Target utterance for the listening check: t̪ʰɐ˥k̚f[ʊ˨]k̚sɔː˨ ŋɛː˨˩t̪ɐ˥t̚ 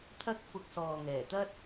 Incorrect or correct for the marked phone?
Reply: incorrect: ʊ˧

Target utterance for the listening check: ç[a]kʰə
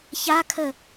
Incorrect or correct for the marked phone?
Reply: correct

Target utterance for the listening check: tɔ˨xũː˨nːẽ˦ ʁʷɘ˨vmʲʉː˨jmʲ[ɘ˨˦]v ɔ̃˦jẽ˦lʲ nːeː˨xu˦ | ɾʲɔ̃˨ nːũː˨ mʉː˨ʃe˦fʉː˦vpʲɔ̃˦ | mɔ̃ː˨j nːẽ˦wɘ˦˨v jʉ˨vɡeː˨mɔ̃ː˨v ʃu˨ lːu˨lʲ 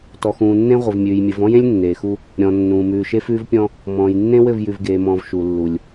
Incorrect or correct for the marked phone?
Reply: correct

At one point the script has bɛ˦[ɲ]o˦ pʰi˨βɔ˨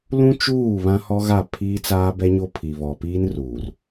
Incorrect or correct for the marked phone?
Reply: correct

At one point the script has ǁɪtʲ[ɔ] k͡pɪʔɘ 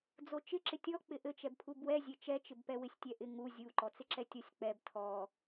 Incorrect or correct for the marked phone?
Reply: correct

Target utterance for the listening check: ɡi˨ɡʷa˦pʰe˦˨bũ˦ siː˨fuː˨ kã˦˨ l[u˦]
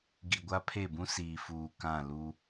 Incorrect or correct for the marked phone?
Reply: correct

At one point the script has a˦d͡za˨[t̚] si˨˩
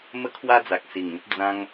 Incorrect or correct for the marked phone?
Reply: incorrect: k̚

